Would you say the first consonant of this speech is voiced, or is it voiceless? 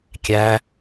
voiceless